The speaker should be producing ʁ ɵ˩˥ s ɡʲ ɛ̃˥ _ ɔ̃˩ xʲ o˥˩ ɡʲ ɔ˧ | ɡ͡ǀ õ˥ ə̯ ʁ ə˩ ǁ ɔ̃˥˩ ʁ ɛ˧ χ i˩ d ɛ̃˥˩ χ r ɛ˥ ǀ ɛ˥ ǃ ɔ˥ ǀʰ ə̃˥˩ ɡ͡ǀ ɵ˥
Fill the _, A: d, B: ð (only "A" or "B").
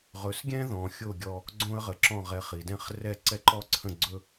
B